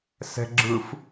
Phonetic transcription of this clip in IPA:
s ɛ̤ ɡ͡ǁ ɯ f

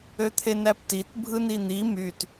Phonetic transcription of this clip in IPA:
ø t̪ʰ e n æ p t i t bʱ ɯ n i n̪ i m y t

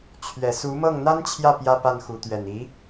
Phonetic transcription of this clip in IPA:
t͡ɕʰ ɥ ɛ˨˩ s u˧˥ m ɤ˥˩ ŋ n̪ a˥ n t͡ɕʰ j ä˥˩ p j ä˥ p a˥˩ n x u˧˥ t̪ ɥ ɛ˨˩ n i˧˥

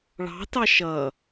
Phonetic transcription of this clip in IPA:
ɭ ɑ̤ t ɑ ʃ ʌ

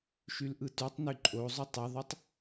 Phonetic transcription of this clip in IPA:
ʃ y l ʔ ɯ t y tˤ n y ǃʼ o zˤ y tˤ ɯ ðˤ o tˤ

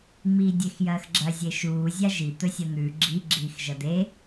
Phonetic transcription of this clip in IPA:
ŋ͡m iː dʲ e x j ɐː x ɡ͡ǁ ɐ zʲ e ʃ uː zʲ a ʒ i t̪ ɵ sʲ ɐ n̪ ʉ ɡ͡ǁ i ɡ͡ǁ iː x ʒ ɐ d̪ e

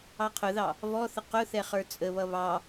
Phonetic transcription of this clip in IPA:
ɑ qʰ ʊ ð ɑ | v ɔ θ ə q ʊ θ ɛ χ ə˞ t͡sʼ ə β ʌ β ɑ

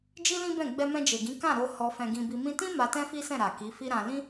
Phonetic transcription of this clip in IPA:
d͡ʒ i˦ l ĩ˦ b ɛ̃˦˨ ɡ͡b ɛ˧ m ɛ̃˧ d͡ʒ e˨ ɡ ĩ˨˦ k ã˦˨ ɾ o˧ h ɔ˧ f ɛ̃˧ ɡ ĩ˧ b i˧ m ĩ˧ t ĩ˦ m a˧ t ɛ̃˦ f i˦ s ɛ̃˦˨ ɾ a˨ k i˨˦ f i˦ ɾ ã˧ l ĩ˦

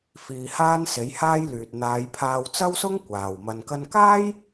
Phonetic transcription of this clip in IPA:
f iː˧ h aː˥ n s e˨˥ j h aː˥ j l yː˨ t̚ n̪ aː˨˧ j pʰ aː˧ w t͡s ɐ˥ w s ʊ˥ ŋ kʷ aː˨ w m ɐ˧ n k ɐ˧ n k aː˥ j

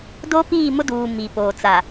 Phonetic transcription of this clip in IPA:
d o˦ p iː˦˨ m ʊ˦ d uː˨ m i˨ p oː˨ t͡s a˨

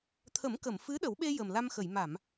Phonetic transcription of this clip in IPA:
t̪ʰ ə˨˩˦ m k ə˨˩˨ m f ɨ˧˥ ɗ ə˨˩˦ w ɓ e˧ j ə˨˩ m l a˧ m x ə˨˩˨ j m a˨˩˨ m

